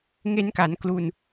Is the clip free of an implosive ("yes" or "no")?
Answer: yes